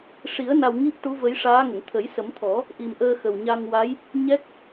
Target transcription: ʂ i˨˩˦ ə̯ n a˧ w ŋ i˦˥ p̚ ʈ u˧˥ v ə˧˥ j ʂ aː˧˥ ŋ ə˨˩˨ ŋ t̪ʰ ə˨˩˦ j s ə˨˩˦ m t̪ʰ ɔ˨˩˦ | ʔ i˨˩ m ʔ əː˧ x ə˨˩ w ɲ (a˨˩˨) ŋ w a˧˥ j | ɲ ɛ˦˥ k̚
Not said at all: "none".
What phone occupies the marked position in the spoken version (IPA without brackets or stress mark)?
a˧